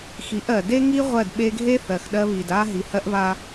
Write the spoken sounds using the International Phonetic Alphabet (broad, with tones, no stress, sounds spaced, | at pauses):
x i˨˦ ʔ ɜ˨ d e˦ ŋ i˦ ʁʷ ɜ˦˨ d ɓ e˦ ɡʱ e˦ θ ɜ˨ x ɗ ɜ˦ β i˨ d a˦ ɦ i˨ h ɜ˦ ʔ β a˦